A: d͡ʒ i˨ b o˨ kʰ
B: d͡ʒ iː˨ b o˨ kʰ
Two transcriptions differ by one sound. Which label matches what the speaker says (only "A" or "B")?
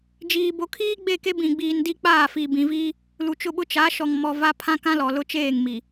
B